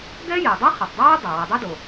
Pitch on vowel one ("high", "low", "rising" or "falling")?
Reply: high